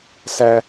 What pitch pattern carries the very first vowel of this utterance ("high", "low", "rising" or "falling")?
high